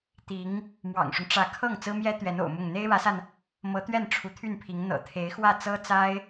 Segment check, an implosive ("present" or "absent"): absent